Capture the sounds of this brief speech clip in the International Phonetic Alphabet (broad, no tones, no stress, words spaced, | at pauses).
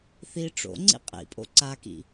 θi ʈ͡ʂo̰ŋ͡ǀḭ qʼḭpʼo̰ ǀakḭ